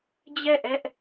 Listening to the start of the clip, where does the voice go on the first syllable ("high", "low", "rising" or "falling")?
falling